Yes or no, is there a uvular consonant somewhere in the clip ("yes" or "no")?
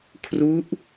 no